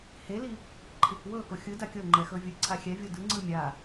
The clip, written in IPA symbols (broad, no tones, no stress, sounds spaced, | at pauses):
h e l i | ǃʰ i k w ɤ k o xʲ ɯ d a kʲ ɤ ŋ͡ǃ ɛ x ɤ vʲ ɯ ǀʰ a xʲ ɛ vʲ o d ɯ ŋ͡ǀ ɯ mʲ a